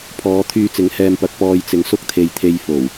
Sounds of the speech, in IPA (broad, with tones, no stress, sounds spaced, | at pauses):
pʰ ɔː˨˧ t̪ʰ yː˧ t͡s ɪ˨˥ ŋ h ɛː˨ m p ɐ˨ k̚ p ɔː˨ j t͡s ɪ˨˧ ŋ s ʊ˥ k̚ t̪ʰ e˨ j t̪ʰ e˧ j f o˨˩ w